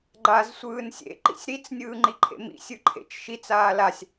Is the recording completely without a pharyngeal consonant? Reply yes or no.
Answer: yes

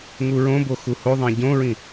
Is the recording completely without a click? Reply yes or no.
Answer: yes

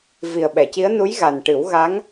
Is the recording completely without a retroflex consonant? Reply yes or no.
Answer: no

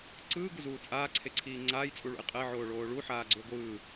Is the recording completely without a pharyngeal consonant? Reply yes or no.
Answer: no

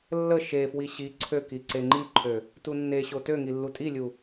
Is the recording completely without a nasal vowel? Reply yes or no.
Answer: yes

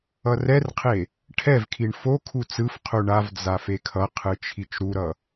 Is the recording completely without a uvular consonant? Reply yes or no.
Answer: no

